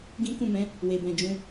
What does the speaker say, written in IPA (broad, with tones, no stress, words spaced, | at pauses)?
ɡĩ˦ kũ˦˨mɛ̃˨˦ | we˨bɛ̃˨d͡ʒũ˧